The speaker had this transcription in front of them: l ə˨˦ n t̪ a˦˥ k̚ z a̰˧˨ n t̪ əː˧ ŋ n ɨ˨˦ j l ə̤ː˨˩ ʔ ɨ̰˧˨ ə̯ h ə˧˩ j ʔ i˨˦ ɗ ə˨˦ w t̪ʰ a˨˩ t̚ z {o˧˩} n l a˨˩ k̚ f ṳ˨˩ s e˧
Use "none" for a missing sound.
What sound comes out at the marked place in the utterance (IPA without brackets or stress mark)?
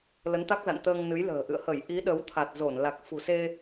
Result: o˧˩